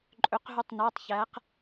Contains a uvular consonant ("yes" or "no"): yes